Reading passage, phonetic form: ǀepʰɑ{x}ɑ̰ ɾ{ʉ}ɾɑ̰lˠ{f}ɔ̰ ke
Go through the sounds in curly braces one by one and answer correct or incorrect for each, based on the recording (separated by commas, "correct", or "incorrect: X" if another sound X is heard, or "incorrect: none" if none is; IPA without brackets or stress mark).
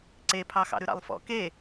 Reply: correct, correct, correct